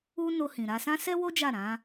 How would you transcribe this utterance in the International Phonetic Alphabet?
u˦ n o˧ h ĩ˨ ɾ a˧ s ã˦ s ɛ˦ w o˦ d͡ʒ a˦˨ ɾ ã˨˦

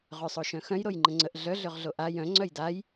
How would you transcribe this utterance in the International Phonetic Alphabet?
ʁ ø sˤ o ʃ œ̃ x œ̃ j ɾ o j ŋ͡ǃ ə̃ ŋ͡ǀ ə ʔ ɮ œ ɮ ø ʁ ɮ o ʔ a j œ̃ ŋ͡ǀ œ j d a j

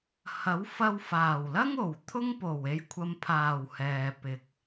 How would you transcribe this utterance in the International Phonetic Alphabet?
h ɐ˨˥ w f ɐ˧ w f aː˨˩ w l ɐ˥ ŋ o˨˩ w t̪ʰ ʊ˥ ŋ p o˨˩ w e˨˧ j kʷʰ ɐ˨ m pʰ aː˨˩ w h ɛː˨ p ɪ˨ k̚

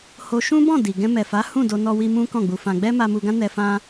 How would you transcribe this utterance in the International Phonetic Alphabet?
h o˧ ʃ ũ˦ b ɔ̃˦˨ d i˨ ɡ ɛ̃˧ m ɛ˨ f a˨˦ h ũ˦˨ d o˧ n ɔ˧ w i˧ m ũ˦ k ɔ̃˦˨ ɡ͡b u˧ f ã˧ ɡ͡b ɛ˦ m a˧ m u˧ ɡ ã˦ n ɛ˧ f ã˦

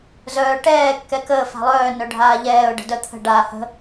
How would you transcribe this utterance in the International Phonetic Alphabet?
z œː ʈ ɛː kː ɛ k əː f a̤ lˠ œː n œ ɖʱ aː ʎ ɛː ʊ̯ ɖ ə̤ d œ t̪ʰ ə̤ ɖ aː h ə̤

